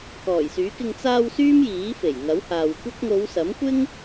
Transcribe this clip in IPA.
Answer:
k ɔː˨˩ j s yː˨˥ k ɪ˧ ŋ t͡s aː˧ w s yː˥ m j iː˨˥ f e˨˩ j ŋ ɐ˨˥ w h aː˨ w kʷ ɐ˥ k̚ ŋ o˨˧ w s ɐ˨˥ m kʷ ɪ˥ ŋ

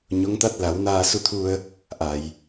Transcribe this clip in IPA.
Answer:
ɲ o˧˥ ŋ t̪ a˦˥ t̚ l a˨˩˦ w n aː˧ s u˧ t̪ʰ u˧ ə̯ | ʔ a˨˩˨ j

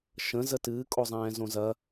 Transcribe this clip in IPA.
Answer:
ʃ ə̃ z ə t ɨː kʼ o zˤ ɛ̃ː z õ z ɐ

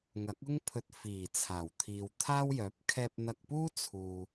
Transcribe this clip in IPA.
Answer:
ŋ ɐ˨˥ k̚ ʊ˥ ŋ pʰ ɵ˧ t̚ f iː˨˩ t͡sʰ aː˨˩ w t̪ʰ iː˨ w t̪ʰ aː˥ w j œː˨˥ p̚ kʰ ɛː˧ p̚ n̪ ɐ˧ k̚ p uː˥ t͡sʰ uː˧

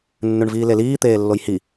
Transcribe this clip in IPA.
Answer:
nː ʉ ɳ v iː l e l iː t̪ eː lː o j h i

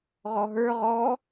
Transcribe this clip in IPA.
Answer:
ʁ ɔ ɦ ə˞ ʁ ɔ

